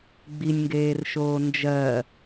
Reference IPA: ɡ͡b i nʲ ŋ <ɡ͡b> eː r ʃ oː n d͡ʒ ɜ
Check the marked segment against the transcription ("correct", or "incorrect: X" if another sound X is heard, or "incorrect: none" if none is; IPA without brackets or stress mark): incorrect: ɡ